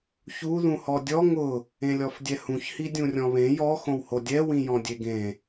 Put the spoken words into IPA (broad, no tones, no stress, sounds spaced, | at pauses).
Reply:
ç u ð ũ h ɔ dʲ ɔ ŋ ʊ | ẽ lʲ ɔ f dʲ ɛ h ũ ç h i dʲ ũ rʲ ɔ̃ β ẽ j ɔ x õ w h o dʲ ɛ w ĩ j ɔ̃ dʲ e ɡ ẽ